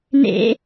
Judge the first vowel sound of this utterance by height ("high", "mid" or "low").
mid